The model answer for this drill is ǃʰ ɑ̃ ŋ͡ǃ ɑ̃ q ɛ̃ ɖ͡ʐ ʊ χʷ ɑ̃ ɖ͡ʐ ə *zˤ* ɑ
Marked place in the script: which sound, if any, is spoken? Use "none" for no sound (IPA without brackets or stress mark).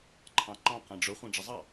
zˤ